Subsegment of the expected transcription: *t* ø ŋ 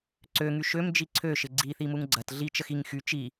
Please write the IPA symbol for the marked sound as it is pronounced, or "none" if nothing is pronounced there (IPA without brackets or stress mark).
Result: ǀ